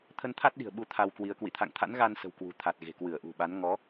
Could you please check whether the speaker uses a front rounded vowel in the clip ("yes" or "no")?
no